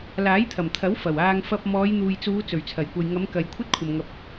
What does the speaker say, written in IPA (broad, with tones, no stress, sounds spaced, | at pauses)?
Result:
l aː˨˥ j t̪ʰ ɐ˨˩ m t̪ʰ ɐ˨˥ w f ɐ˨˩ w aː˧ ŋ f ɐ˧ p̚ m ɔː˨˧ j n̪ uː˨ j t͡s uː˨˧ t͡s ɵ˨˩ ɥ t͡sʰ ɐ˨˩ j kʷ ɐ˨ j ŋ ɐ˨˧ m k ɐ˨ j kʷʰ ɐ˥ t̚ kʷʰ ɐ˨ m ŋ ɐ˨˥ p̚